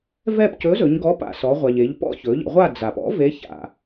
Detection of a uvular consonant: present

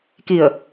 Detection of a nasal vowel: absent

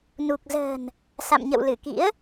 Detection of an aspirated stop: absent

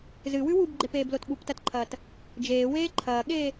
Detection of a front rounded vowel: absent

